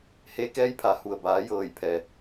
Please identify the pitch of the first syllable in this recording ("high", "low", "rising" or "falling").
rising